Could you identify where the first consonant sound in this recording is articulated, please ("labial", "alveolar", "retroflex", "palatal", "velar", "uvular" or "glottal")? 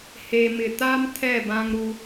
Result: glottal